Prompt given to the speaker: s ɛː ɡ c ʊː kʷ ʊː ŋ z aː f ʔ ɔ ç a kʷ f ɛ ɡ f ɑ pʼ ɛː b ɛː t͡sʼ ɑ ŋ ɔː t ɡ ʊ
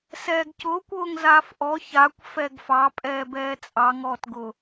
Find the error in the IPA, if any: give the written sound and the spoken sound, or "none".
none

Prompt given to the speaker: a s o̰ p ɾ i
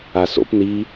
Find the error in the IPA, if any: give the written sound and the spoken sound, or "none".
ɾ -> n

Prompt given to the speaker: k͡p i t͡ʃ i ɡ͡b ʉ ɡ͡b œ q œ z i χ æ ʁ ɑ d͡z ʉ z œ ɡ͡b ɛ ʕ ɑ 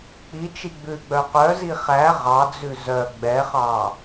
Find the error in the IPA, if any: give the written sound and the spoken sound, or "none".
ʕ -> χ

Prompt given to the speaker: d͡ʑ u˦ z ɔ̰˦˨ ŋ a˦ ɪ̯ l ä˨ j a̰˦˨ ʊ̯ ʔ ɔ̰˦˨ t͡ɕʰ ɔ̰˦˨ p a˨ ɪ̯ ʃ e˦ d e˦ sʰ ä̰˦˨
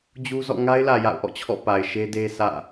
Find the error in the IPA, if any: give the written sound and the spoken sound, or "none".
none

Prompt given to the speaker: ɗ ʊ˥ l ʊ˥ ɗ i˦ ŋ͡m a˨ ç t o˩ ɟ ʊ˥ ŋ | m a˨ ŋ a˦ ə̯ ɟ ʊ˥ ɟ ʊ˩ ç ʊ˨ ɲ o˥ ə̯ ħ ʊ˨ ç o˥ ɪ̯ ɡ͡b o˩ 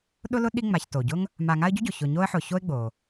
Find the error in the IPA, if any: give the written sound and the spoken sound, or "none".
none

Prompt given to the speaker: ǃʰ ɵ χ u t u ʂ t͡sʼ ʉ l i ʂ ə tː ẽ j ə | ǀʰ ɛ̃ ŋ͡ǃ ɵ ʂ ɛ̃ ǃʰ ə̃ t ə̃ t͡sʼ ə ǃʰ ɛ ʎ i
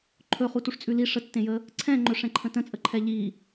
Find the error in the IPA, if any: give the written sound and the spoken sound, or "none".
none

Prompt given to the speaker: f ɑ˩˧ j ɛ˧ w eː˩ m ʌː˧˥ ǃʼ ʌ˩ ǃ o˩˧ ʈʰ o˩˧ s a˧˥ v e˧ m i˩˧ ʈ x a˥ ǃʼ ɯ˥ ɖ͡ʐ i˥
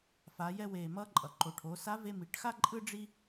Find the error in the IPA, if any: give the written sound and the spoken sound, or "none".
ɑ˩˧ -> a˩˧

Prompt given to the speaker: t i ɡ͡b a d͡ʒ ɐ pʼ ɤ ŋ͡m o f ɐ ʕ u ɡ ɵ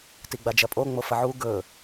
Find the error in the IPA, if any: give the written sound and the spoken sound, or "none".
ɤ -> o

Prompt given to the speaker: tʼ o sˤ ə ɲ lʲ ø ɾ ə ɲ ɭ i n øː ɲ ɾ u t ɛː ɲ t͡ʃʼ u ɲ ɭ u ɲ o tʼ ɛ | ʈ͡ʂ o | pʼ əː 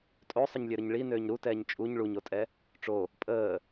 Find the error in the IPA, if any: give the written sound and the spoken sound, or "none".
none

